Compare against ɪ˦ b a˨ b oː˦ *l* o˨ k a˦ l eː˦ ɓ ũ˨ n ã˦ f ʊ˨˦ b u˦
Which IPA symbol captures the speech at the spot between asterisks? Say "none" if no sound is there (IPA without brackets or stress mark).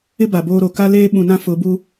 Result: ɾ